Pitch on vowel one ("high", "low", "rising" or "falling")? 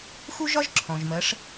high